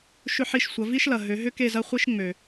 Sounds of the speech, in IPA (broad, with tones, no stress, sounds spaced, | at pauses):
ʃ ʏ˥˧ ħ i˥˧ ʃ sʷ ɐ˨˦ v i˥ ʃ l ɐ˨ ɦ ø˨˦ ɦ ʏ˥ k e˥˧ z ɐ˥ χʷ i˥ ʃ ŋ͡m ø˨